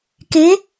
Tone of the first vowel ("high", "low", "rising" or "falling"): rising